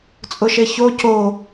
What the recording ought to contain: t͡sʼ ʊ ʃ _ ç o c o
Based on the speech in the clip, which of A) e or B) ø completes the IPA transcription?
A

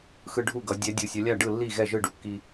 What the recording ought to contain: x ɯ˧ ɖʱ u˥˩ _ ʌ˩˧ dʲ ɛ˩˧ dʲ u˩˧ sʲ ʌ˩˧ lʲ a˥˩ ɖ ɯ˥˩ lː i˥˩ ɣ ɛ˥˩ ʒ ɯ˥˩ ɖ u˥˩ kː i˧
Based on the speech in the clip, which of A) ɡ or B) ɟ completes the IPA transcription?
A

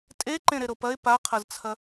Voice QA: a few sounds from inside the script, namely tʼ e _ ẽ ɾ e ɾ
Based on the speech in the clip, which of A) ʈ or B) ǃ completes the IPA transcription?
B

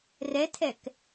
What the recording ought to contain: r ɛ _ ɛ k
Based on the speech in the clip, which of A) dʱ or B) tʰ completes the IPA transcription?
B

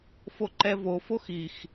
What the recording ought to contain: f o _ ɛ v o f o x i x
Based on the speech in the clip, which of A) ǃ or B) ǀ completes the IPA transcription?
A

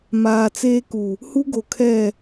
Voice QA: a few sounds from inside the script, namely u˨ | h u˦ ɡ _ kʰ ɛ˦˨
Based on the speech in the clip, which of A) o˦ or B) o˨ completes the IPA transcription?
B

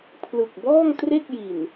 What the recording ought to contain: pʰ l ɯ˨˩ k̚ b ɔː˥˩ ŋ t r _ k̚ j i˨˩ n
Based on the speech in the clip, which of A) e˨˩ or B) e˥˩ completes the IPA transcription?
B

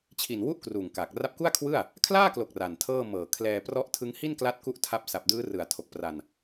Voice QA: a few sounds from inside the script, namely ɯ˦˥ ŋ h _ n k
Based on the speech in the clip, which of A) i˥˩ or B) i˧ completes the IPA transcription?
A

